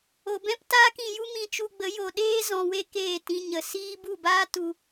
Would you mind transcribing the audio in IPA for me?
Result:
o˨bɛ̃˦p taː˦kĩ˨ju˦ mĩ˧t͡ʃu˧ɡ͡bə˨˦ jo˨ɗeː˦ zɔ̃˧we˦ keː˦˨tĩ˧ ɲə˨siː˦ bu˦˨baː˦tu˧

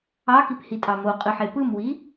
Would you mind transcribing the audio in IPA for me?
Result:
ɑkiphitʼɑ moqʼɯħe pɯmwi

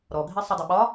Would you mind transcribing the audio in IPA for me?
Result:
ɾɔɡʱi sˤidˤʊɓɒ

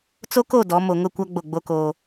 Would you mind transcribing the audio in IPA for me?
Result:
t͡so˦ ko˦˨ dɔ˨˦ mo˨ŋʊ˦˨ kʷa˦ ɡ͡bo˦˨ɡ͡bo˦koː˦

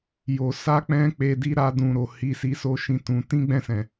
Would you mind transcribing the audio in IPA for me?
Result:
jo˨ sa˧k͡pɛ̃˧ k͡pe˧di˦ ɾa˦dũ˧ɾo˨ hi˧si˧so˦ ʃĩ˦˨tũ˨˦ tĩ˦ɡ͡bɛ̃˦˨sɛ̃˨

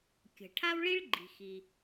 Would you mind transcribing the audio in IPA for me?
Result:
kʲə̤˩ ʈʰa˥wɭi˥ɭɡ͡ǃi̤˩xi˩

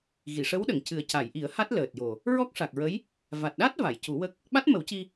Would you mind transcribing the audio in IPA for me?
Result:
ɣi˨˩˨ʂə˧˥wɗə˨˩˨ŋ cɨ˨˩ə̯ca˨˩˨jʔi˨˩˦ə̯ ha˦˥t̚ləː˨˩t̚jo˨˩ | ɹɔ˦˥k̚ʂa˨˩k̚ɹə˧˥j | va˨˩t̚ɗa˦˥t̚ va˨˩˨jcu˨˩˦wə˦˥k̚ | ɓa˦˥t̚mə˨˩˦wci˧

